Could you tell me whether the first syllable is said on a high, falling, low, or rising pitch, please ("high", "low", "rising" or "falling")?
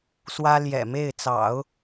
high